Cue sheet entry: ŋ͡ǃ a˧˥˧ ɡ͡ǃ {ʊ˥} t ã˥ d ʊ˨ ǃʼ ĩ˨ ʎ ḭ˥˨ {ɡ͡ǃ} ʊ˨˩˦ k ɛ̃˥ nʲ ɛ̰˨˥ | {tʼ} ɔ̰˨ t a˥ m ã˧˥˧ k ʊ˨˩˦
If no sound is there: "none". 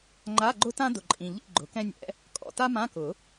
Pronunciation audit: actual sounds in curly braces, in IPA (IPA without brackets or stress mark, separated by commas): ʊ˥, ɡ͡ǃ, kʼ